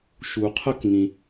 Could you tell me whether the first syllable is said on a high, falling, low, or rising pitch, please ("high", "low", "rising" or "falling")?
low